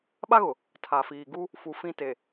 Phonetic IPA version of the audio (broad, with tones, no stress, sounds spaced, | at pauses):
ɓ a˦ ɣ ʊ˨ | tʰ a˨ f iː˨ ɡ u˦ | f u˨ f ĩ˦ t e˨